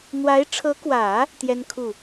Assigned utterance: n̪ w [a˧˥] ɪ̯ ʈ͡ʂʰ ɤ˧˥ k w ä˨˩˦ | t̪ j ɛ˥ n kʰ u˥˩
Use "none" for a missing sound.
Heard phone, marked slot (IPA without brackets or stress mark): a˧˥